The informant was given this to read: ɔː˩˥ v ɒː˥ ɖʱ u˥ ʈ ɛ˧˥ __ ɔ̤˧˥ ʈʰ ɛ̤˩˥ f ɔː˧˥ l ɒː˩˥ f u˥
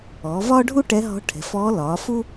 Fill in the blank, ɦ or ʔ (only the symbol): ɦ